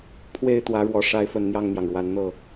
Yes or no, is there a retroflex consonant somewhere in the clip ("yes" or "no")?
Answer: yes